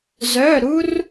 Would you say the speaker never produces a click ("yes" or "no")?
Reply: yes